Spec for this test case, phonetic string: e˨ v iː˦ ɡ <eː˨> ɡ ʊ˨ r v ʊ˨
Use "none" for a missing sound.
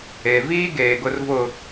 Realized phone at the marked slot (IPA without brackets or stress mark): eː˨